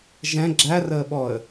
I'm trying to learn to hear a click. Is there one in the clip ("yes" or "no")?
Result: yes